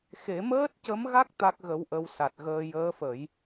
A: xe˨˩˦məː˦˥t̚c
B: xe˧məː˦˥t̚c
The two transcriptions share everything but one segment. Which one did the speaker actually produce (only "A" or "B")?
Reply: A